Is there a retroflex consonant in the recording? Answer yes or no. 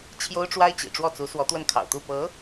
yes